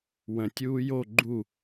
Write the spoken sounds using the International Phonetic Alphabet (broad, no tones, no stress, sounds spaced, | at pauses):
w ə̃ tʲ uː j o ɡ͡ǃ u